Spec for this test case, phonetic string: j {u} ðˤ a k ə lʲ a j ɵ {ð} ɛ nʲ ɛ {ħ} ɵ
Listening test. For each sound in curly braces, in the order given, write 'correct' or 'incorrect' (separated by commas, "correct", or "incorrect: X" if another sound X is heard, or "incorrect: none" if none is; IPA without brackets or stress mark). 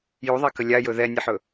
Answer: correct, correct, correct